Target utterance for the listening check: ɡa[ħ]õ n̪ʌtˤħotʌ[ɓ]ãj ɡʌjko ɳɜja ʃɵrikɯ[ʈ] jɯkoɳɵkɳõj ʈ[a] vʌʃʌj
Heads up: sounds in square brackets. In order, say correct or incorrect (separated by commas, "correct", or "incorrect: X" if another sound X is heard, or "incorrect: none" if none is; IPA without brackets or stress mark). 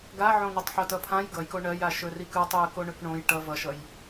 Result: incorrect: ʕ, incorrect: pʰ, incorrect: tˤ, incorrect: ʌ